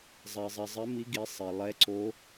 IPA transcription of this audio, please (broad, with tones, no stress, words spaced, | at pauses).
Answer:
zˤɛ˨zˤi˨ zˤɪ˧˥mi˧˥ ɡi˧˥sˤe˨ lˠɛ˧˥ǀo˧˥